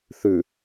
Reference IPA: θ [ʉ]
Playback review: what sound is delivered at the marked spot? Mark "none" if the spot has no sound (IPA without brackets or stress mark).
ʉ